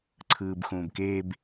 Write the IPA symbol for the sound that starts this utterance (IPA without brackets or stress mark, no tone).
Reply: ǀʰ